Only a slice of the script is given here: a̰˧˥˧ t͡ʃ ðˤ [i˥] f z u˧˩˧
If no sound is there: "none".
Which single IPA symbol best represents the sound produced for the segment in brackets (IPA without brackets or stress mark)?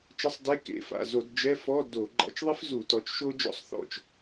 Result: i˥